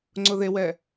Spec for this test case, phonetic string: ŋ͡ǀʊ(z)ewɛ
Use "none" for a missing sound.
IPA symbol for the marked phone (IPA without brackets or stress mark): ð